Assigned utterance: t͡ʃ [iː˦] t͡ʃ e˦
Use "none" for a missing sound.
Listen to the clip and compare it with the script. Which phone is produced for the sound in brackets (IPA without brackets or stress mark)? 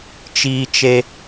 iː˦